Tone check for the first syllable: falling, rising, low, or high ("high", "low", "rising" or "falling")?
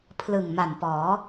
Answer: low